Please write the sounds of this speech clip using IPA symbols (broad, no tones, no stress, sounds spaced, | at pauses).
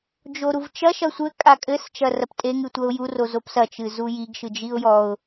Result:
d͡ʒ o ɾ u v t͡ʃ ɐ ʃ ɐ sʷ ɘ kʼ a kʼ ɘ s t͡ʃ ɐ r ɐ p tʼ e ŋ ɨ tʷ ɐ ʊ̯ j u r o z o p s ɐ t͡ʃ ɨ z u j i ɡ ʃ ɨ d͡ʒ i ʊ̯ j ɔ ʊ̯